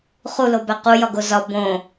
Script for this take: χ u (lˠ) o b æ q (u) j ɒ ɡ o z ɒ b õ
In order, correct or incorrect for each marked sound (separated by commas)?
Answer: incorrect, correct